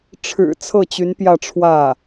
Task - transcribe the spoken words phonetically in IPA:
ʈ͡ʂʰ ɻ̩˨˩ t͡sʰ ɤ˥˩ t͡ɕ y˧˥ n p j ä˥˧ ʈ͡ʂʰ w ä˥˩

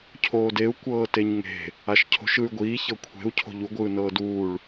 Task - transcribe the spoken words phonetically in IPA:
cʰ oː d e u̯ kʷ ɤː t e ɲ ŋ e̤ | a ʃ cʰ o̤ ʃ ɯ y̯ ɡʷ iː ç ɤ kʷʰ e̤ u̯ cʰ o̤ ʎ u ɡʷ ɯː n ɤː d uː ɭ

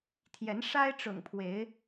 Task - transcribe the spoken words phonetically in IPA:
t̪ʰ j ɛ˨˦ n ʂ a˦ ɪ̯ ʈ͡ʂ ʊ̰˨˩ ŋ pʰ w e˨˦ ɪ̯

